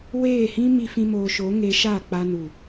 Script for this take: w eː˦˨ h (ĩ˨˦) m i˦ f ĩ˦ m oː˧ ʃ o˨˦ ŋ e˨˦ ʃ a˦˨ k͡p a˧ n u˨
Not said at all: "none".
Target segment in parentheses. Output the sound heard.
ĩ˦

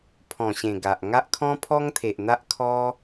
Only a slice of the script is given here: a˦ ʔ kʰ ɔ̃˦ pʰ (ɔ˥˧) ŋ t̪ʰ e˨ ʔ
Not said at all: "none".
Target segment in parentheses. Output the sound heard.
ɔ˦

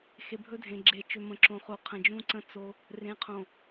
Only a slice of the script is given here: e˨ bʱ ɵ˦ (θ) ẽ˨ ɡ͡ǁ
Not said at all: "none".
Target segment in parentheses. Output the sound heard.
dʱ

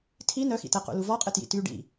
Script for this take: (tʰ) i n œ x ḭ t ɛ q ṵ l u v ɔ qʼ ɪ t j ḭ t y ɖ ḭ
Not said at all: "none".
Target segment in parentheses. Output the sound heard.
tʰ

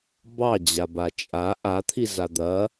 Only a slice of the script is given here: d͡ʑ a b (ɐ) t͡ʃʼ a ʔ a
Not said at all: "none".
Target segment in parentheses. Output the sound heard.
a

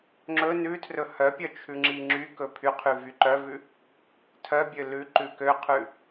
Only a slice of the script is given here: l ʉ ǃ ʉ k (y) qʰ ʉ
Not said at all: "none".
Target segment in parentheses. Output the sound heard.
ø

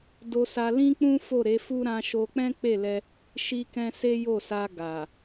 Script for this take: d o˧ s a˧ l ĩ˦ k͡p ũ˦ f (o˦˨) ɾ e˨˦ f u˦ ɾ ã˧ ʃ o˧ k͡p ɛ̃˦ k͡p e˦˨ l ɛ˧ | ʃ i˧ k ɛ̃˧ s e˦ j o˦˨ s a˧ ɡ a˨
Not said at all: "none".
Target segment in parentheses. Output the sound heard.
o˦˨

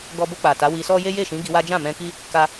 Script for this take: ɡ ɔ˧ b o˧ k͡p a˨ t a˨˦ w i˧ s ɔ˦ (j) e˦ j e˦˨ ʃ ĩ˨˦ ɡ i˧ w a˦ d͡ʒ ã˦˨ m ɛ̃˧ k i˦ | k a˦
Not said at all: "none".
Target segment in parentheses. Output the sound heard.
j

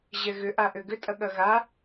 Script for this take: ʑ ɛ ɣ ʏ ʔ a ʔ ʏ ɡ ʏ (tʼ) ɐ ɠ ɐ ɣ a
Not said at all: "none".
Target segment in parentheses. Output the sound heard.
tʼ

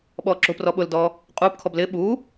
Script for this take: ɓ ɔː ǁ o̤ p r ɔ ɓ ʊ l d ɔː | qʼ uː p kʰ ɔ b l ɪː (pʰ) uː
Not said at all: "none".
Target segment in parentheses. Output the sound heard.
ɓ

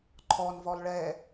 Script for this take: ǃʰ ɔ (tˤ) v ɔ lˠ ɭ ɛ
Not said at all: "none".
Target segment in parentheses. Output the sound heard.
n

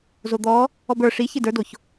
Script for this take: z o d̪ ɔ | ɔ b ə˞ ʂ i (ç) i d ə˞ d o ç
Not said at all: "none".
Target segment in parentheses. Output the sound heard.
ç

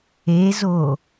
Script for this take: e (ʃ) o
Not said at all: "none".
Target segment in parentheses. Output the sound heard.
z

